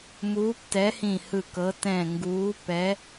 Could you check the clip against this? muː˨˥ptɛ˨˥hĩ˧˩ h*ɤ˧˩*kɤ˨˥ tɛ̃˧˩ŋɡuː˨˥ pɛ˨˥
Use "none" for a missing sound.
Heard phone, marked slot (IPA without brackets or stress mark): ɯ˧˩